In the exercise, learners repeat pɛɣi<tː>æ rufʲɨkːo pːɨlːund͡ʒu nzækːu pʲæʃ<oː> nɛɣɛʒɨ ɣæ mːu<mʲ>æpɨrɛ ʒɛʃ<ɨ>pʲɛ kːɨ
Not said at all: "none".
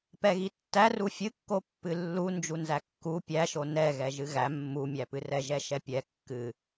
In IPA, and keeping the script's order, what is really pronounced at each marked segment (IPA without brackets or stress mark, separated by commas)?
tː, o, mʲ, ɛ